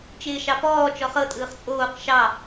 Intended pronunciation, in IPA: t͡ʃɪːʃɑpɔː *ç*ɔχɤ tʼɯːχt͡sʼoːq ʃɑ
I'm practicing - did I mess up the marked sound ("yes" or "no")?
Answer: yes